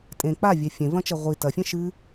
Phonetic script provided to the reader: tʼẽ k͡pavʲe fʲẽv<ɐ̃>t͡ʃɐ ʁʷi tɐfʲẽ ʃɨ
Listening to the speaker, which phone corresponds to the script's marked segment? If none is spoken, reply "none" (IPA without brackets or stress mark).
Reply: ɐ̃